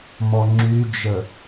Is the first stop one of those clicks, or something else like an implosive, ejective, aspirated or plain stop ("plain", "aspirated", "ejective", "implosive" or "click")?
click